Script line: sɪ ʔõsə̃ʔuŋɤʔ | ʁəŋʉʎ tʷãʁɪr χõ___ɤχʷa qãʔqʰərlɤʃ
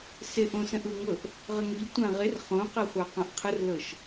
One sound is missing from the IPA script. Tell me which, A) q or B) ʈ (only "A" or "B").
A